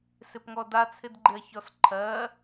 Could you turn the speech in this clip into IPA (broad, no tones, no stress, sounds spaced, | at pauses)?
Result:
s ɪ p ŋ ɔ d a t͡sʰ ɪ d ɡ͡ǃ ɪ ɐ̯ ç ɔ s ǃʰ ɜ